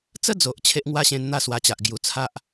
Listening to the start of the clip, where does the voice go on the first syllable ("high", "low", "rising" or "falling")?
high